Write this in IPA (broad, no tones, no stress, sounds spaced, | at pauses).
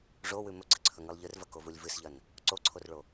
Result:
ʐ o w ʉ m ɵ ɡ͡ǀ ɨ ǀʰ ɵ ŋ ɨ lˠ ʎ ɨ r v ɐ k o v u lʲ v ɨ s ʎ ɐ n | ǀ o ǀʰ o r ɭ o